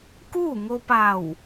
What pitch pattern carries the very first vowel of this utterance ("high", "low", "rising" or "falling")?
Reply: falling